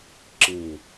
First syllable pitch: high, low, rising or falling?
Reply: low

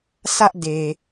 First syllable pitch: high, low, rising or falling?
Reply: high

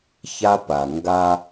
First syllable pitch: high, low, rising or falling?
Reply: high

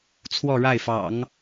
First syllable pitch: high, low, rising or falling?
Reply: falling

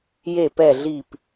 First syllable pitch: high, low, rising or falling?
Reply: low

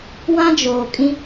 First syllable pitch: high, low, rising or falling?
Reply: high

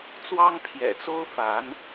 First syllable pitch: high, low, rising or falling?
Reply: high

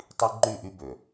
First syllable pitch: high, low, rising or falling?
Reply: high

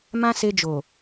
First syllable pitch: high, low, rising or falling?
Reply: high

